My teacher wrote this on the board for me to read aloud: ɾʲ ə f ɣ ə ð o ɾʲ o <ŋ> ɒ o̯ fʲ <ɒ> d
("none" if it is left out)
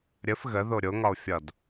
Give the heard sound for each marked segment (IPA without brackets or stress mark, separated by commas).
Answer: ŋ, ɒ